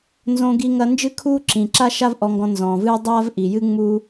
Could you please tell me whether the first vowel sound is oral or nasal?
nasal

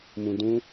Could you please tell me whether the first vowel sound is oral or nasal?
nasal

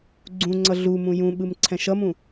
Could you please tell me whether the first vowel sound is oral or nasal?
nasal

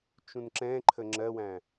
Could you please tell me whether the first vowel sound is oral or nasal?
nasal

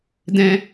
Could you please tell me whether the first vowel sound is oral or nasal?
nasal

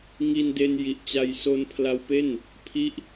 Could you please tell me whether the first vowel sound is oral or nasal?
oral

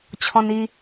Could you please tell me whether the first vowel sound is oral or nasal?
nasal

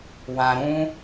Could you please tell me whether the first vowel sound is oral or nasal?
nasal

